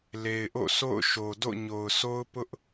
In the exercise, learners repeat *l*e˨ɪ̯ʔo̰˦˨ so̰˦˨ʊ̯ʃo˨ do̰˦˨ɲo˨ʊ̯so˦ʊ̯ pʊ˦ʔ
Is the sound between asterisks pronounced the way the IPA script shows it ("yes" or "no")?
yes